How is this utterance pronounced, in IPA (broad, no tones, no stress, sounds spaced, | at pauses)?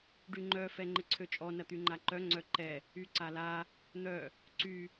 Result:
ɖ y ŋ͡ǃ œ f ɛ ŋ͡ǃ ɪ ǀʰ ø t͡ʃʼ ɔ n ɐ t̪ y ŋ͡ǃ a ǃ œ ŋ͡ǀ œ ǃ ɛ | y ǀ a l a | n̪ œ | ǀ y